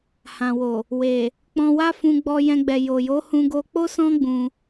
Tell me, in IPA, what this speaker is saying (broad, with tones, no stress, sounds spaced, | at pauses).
h ã˨ w o˨ | w e˨ | k͡p ɔ̃˧ w a˦ f ũ˧ ɡ͡b ɔ˧ j ɛ̃˧ ɡ͡b ɛ˨ j o˨ j o˨˦ h ũ˧ ɡ o˧ k͡p o˦ s ɔ̃˦ ɡ͡b ũ˧